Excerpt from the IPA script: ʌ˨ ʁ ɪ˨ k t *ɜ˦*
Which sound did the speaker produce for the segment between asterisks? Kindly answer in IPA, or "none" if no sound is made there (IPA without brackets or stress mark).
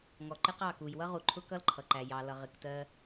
ɜ˦